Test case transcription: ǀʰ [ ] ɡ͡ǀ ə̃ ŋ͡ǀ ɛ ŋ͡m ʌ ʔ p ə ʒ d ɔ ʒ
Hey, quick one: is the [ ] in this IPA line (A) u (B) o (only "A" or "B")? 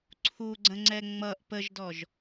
A